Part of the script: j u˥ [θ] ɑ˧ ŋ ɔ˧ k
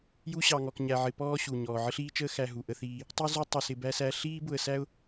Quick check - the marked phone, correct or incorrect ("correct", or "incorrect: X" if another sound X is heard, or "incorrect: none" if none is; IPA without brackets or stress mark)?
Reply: incorrect: ɕ